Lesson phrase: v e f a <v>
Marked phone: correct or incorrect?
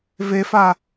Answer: incorrect